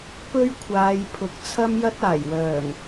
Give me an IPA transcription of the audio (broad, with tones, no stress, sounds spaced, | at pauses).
p ɵ˥ ɥ kʷʰ aː˨˧ j pʰ ʊ˨ k̚ t͡sʰ ɐ˥ m j ɐ˥ t̚ aː˨˩ j w œː˨˩ ŋ